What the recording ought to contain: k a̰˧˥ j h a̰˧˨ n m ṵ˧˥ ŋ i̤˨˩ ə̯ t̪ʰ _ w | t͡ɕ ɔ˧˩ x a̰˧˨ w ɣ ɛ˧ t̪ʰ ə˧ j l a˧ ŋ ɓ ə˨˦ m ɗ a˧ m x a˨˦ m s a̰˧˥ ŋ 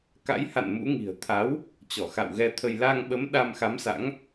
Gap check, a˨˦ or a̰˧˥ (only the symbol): a˨˦